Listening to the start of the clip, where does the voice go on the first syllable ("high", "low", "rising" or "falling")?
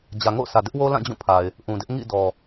low